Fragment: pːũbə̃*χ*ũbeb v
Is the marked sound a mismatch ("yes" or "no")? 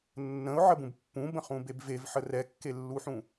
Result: no